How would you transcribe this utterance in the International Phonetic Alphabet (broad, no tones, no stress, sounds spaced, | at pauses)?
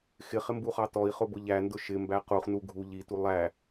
x ɪ χ ɪ m b u χ ɑ t ɔ i̯ χ ʊ b ʊ ʎ æ n d ʊ ʃ ɪ m b æ q u χ n u ɡʱ u ʎ i t u lˠ æ